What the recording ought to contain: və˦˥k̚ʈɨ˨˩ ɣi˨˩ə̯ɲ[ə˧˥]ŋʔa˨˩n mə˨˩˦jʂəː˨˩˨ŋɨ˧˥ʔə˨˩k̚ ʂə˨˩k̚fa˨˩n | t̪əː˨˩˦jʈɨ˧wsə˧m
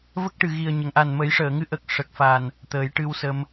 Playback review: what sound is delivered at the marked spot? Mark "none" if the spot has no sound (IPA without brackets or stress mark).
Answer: ə˨˩˨